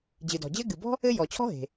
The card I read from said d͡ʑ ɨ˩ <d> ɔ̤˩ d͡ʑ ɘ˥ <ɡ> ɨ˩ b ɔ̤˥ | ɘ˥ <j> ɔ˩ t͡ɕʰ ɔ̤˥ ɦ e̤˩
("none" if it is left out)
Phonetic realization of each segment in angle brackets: d, ɡ, j

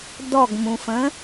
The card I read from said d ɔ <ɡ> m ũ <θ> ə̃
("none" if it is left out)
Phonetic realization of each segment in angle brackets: ɡ, f

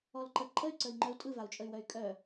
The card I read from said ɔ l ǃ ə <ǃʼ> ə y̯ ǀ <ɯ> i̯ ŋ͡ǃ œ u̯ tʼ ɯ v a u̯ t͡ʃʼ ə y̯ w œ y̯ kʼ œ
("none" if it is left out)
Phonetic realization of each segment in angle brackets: ǃʼ, ə

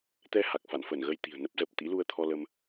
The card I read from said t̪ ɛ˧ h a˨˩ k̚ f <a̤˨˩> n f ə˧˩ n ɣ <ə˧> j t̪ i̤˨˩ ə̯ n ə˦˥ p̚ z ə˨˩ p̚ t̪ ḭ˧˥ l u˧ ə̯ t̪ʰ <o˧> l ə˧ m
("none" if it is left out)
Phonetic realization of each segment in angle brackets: a̰˧˨, ə˧, ɔ˧

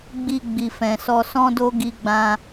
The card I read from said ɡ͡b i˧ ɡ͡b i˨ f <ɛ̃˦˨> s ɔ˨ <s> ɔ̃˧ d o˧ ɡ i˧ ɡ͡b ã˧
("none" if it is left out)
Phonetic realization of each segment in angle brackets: ɛ̃˨, s

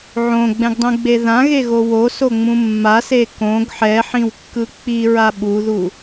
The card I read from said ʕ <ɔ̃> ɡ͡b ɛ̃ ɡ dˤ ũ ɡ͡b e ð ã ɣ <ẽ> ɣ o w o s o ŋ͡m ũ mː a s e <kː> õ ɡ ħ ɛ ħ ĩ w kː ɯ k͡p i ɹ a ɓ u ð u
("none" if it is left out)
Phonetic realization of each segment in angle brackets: õ, e, k

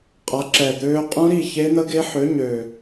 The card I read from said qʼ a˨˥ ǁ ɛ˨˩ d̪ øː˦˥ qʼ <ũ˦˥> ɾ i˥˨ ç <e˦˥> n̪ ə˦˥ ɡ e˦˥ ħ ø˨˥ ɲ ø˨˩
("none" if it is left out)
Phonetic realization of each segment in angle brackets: ũ˦˥, e˦˥

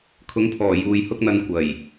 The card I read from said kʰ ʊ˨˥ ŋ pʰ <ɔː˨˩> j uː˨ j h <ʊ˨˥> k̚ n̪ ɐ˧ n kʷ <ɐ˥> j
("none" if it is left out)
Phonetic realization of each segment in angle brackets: ɔː˨˩, ʊ˥, ɐ˨˩

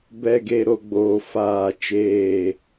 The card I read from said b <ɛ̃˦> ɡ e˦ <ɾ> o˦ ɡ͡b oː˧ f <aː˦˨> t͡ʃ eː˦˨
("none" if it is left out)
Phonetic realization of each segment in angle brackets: ɛ˦, ɾ, aː˦˨

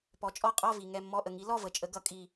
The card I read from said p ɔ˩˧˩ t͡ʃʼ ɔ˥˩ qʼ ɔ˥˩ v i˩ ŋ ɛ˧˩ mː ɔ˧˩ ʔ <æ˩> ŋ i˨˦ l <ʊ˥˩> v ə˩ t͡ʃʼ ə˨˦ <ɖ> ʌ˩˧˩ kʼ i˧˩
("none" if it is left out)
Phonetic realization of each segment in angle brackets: ə˩, ɔ˥˩, ɡ

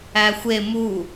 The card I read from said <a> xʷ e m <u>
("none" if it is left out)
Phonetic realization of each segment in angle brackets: æ, u

